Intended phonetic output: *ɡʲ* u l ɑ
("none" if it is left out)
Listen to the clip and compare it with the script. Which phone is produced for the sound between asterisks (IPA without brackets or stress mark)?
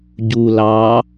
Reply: ɟ